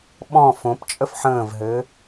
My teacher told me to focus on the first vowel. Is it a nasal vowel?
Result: yes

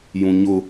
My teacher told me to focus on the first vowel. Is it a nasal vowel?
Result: yes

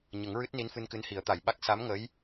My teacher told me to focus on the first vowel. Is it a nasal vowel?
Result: no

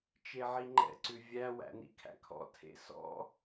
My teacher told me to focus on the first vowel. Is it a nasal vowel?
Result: no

